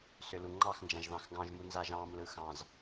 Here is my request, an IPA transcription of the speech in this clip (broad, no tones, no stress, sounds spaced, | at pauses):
s ʏ l u ŋ͡ǃ ɑ x n d͡ʒ ã ʒ ð ɑ̃ x ɡ ɑ̃ ʒ m u n z a ʒ ɑ̃ m l ɯ x ɑ̃ z